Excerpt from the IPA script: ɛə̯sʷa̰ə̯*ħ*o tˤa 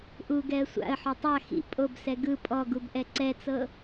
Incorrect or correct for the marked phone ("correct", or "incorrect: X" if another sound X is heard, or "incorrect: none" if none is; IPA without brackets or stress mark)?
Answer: correct